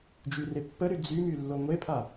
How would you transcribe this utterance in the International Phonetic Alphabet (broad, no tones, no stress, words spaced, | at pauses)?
d͡ʒyrepːəɾy d͡zymy lːoŋʷepʰa